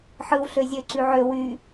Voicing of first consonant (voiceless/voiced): voiceless